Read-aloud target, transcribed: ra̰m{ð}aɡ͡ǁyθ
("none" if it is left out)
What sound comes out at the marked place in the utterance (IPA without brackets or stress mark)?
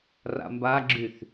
b